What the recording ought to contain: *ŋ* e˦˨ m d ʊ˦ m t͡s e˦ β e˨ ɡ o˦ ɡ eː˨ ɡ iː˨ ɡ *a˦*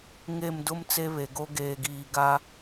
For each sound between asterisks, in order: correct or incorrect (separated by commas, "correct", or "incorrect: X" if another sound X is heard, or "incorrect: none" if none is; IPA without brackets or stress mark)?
correct, correct